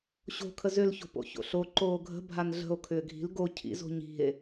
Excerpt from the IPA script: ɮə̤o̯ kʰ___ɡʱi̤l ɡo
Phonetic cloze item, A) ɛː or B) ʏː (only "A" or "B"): B